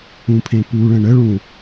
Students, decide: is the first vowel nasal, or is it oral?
nasal